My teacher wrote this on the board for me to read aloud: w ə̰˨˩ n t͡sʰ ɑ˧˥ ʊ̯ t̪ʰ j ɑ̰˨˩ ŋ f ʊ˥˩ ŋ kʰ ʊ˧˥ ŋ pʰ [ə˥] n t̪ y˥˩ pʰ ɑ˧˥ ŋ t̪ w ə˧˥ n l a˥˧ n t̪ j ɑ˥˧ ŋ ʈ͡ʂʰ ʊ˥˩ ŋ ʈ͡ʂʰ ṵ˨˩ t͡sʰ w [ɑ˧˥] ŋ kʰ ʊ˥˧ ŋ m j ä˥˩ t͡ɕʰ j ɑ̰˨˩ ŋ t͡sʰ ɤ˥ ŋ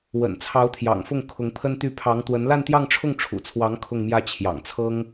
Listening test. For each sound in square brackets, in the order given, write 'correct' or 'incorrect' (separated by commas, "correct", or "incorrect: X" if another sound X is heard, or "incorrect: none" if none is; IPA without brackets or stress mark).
correct, correct